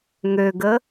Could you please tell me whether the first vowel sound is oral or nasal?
oral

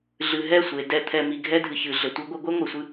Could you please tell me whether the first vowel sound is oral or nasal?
oral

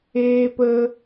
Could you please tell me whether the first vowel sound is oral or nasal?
oral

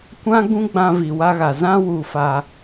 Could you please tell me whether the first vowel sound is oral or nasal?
nasal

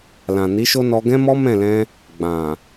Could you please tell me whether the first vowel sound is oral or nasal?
nasal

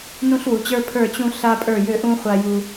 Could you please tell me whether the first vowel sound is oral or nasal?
nasal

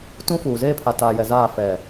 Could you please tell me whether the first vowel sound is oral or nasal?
nasal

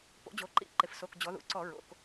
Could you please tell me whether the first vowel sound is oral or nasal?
oral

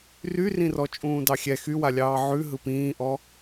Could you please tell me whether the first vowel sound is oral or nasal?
oral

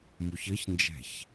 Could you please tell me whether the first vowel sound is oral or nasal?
oral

